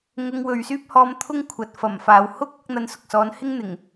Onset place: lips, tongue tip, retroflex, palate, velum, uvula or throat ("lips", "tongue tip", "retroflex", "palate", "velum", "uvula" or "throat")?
velum